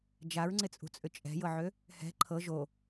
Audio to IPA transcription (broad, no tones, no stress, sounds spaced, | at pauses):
d͡ʒ a ɹ ŋ͡ǀ ɪ t͡sʼ ṳ t͡sʼ ʏ t͡ʃʼ ɛ̤ j ɤ ʕ ø | h ɛ̤ ǃʰ ɤ ʒ o